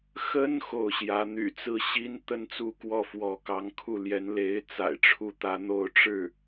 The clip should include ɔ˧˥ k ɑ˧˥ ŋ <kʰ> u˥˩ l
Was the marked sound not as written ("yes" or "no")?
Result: no